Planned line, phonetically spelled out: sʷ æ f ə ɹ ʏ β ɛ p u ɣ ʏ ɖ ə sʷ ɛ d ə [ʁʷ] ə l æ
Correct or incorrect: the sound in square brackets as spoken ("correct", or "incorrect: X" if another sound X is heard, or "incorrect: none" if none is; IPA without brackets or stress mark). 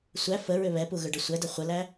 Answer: incorrect: χʷ